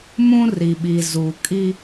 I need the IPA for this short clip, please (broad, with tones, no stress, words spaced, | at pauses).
mũ˦ri˨ ɓi˨zuː˨kʼi˦